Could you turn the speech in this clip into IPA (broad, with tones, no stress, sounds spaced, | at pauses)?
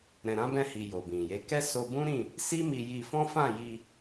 ɾ ɛ̃˨ ɾ ã˨˦ b ɛ̃˧ h i˨ j o˨ b ĩ˨ j e˨˦ k ɛ˦ s o˧ b ũ˦ ɾ ĩ˦˨ | s i˦ m i˧ j i˧ f ɔ̃˦ f ã˦˨ j i˧